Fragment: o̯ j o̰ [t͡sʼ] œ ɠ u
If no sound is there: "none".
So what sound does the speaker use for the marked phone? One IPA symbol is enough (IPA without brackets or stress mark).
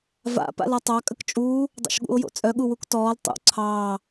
t͡sʼ